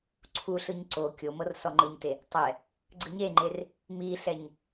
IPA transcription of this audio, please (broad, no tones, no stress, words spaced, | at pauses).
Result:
ǀʰuɬɯɲ ǀo kʲomɤr sɔŋ͡ǃɯɲte | tˤɛ | ɡ͡ǀɯɲeŋ͡ǃer | miɬɛɲ